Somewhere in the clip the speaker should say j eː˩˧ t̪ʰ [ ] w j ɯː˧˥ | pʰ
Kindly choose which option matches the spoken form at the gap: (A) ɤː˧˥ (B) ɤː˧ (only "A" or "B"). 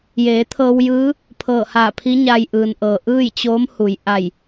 B